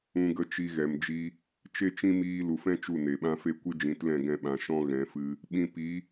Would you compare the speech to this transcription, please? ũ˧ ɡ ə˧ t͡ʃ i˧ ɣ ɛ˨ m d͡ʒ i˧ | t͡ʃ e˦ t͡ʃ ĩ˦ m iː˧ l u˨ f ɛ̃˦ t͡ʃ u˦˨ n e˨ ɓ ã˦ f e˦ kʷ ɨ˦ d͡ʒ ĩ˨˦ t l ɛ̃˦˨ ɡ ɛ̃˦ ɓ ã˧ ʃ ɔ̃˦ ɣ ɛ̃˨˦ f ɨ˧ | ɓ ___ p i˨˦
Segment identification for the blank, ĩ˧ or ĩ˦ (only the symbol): ĩ˧